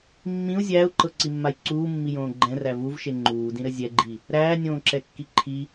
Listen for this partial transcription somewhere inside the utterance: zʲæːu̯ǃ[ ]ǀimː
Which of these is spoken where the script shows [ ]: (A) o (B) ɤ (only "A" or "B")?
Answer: B